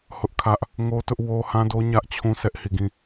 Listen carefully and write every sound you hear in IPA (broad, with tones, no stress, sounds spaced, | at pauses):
h ʊ˦ ʔ kʰ ä˦ ʔ | ŋ o˦ t ʊ˦ ʔ w o˦ h ã˦ d o˦ ɲ ä˦ ʔ t͡ɕʰ ũ˦ s ɛ˦ ʔ h i˦˨ ɡ ĩ˦˨